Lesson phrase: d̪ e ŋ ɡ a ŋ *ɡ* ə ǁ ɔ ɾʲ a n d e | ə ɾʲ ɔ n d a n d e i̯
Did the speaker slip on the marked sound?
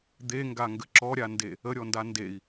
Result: no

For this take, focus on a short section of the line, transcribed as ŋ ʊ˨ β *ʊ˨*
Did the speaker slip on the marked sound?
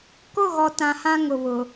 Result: no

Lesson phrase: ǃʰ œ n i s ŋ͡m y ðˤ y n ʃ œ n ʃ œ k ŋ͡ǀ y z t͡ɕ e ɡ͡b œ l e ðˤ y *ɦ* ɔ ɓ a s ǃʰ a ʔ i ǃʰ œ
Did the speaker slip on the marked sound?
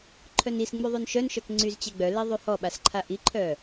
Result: yes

